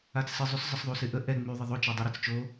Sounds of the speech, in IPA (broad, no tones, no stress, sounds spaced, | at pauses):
a t͡s s ɪ zˤ y s zˤ ə s ðˤ u s ɪ ʔ ə ʔ ɛ ŋ͡m y ðˤ ə ðˤ o t͡ʃ i dˤ u ɾ ɛ t͡s t͡ʃ o